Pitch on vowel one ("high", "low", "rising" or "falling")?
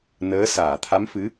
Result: rising